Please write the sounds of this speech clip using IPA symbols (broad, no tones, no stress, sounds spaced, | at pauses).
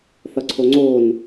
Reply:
θ ʌ ǀʰ o ŋ͡ǀ oː n